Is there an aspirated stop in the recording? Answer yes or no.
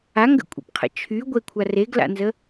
yes